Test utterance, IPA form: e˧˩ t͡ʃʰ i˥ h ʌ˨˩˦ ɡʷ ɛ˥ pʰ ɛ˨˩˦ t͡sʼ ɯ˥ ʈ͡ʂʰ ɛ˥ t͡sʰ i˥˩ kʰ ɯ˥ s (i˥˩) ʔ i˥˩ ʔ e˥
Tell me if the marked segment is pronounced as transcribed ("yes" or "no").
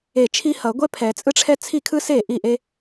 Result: no